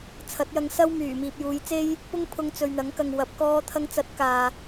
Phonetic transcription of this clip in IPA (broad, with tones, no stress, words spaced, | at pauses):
t͡sʰɐ˨˥t̚jɐ˧ŋsɐ˥wmyː˨˩ miː˨p̚juː˨jt͡se˥j | pʊ˥ŋpʰʊ˧ŋ t͡sɵ˨ɥn̪ɐ˨˥ŋkɐ˨ŋ wɐ˨˥p̚kɔː˥t̪ʰɐ˥ŋ t͡sɐ˨˥t̚ kaː˨